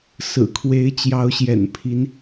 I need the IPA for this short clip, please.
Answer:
sɹ̩˨˩kʰwe˧˥ɪ̯ t͡ɕjɑ˧˥ʊ̯ɕjɛ̰˨˩npʰi˧˥n

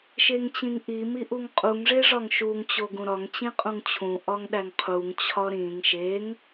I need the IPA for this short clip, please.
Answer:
ʃeŋt͡ɕĩŋʔi miʔuŋqʼuŋ ʐeʐɒŋʃuŋ t͡ɕoɡũɾɒŋ t͡ɕĩqʼũŋt͡ɕʰũ ʔɒŋɗæŋqʰuŋ t͡ɕʰɒɾĩŋ ʃeŋ

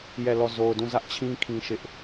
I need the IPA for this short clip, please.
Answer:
jɛ˦˨lɔ˦˨ zo˨ʊ̯dũ˦˨zä˦ʔt͡ɕʰĩ˦ kʰĩ˦ʃɪ˦ʔ

